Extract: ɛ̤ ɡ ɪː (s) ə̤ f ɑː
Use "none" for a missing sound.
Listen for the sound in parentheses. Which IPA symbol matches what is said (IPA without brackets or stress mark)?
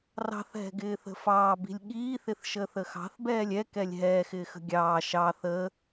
θ